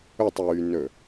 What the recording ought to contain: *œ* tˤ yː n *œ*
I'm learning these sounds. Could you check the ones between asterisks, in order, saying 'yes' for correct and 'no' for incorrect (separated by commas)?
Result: no, no